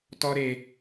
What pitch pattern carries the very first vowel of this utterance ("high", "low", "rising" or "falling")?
high